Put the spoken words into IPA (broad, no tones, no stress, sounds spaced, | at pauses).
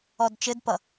ɔ d t͡ʃ ɘ d p ʌ